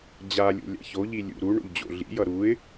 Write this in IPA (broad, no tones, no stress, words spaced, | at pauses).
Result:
d͡ʑalʲo̰ lʲa̰çoʎi lʲṵ ɾuɳo̰ʎ d͡ʑo̰ɮḭjʌ ɾuɪ̯